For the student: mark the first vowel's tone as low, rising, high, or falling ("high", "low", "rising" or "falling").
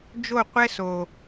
falling